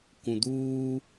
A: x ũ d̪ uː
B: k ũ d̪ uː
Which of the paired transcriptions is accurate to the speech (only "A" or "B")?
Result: B